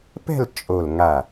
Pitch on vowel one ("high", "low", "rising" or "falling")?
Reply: falling